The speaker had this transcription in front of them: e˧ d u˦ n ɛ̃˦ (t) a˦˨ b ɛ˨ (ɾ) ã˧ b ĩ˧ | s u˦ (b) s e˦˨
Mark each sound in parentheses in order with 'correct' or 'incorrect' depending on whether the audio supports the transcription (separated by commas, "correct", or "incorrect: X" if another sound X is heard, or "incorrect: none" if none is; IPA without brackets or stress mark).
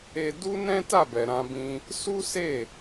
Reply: correct, correct, incorrect: none